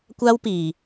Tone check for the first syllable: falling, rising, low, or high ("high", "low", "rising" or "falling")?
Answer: high